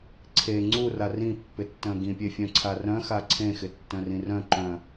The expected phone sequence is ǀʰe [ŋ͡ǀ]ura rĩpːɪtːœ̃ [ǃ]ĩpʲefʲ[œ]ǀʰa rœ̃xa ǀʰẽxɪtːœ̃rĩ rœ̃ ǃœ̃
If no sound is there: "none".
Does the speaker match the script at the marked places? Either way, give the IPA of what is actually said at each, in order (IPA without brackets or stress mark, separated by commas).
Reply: ŋ͡ǀ, ɡ, œ̃